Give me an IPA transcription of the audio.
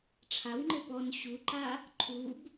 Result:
ʈ͡ʂʰ a w ŋ͡ǃ ɘ p ɔ n ɕ u ǃ a | ǃʰ u b

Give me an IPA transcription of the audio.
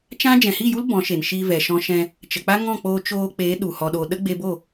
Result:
t͡ʃ ã˦ d͡ʒ ɛ̃˨ h i˦˨ j u˦ l b ɔ̃˨˦ ʃ e˨ n ʃ iː˧ v ɛ˨ ʃ ɔ̃˧ ʃ ɛ̃˧ | t͡ʃ ə˨ k͡p a˦ ŋ ɔ̃˦˨ k͡p oː˧ t͡ʃ oː˧ k͡p eː˨˦ ɗ u˨ h ɔ˨ ɗ o˨ ɗ ə˦ ɡ͡b e˧ b o˦˨

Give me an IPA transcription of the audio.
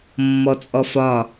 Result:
mː ɔ t͡sʼ ɔ f ɒ

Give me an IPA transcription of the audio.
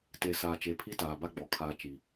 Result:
t e˨ s aː˨ t͡ʃ e˨ pʰ i˦ t aː˨ b a˦ ɡ͡b ɔ˨ kʰ aː˦ t͡ʃ i˨

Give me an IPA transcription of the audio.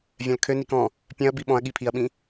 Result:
vʲ œ̃ l kʰ ø n i k ɔ̃ | pʲ œ̃ ɐ̯ b i ɓ ɔ̃ ɐ̯ ɠ i pʰ i ɐ̯ ɓ ĩ

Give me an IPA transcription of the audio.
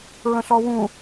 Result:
ɹ ə̃ ɬ ɔ w ũ

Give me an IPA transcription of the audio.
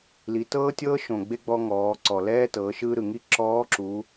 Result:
l i˩˧ t ɤː˥ tʲ ɤː˥ ʃ õ˩ ɡ͡b e˧ ɡ͡b ɔ˧ ŋ ɔː˩˧ ǀ ɔ˩ l ɛː˥ t ɤː˩˧ ʃ ɯ˧ ɾ ɯ˩ ŋ i˧˥ ǁ ɔː˧˥ ǁ u˩˧

